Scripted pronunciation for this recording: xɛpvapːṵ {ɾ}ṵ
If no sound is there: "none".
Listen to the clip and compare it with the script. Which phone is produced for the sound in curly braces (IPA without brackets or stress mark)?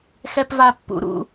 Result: ɾ